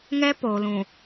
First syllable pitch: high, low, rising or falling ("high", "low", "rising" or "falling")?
high